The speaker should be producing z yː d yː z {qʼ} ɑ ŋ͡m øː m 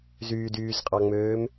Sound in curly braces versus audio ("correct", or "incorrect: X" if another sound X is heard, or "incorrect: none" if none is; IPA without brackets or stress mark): correct